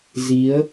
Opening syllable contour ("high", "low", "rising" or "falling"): rising